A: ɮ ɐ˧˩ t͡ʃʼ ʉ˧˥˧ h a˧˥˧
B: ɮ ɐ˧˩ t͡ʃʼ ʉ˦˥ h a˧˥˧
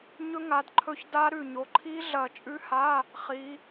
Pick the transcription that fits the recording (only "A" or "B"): B